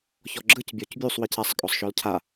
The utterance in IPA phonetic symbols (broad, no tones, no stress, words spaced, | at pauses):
çɔɡ͡ǁɯc bʲɔcbʲusˤ wicasˤ kʼɔsˤʃɔlcʰa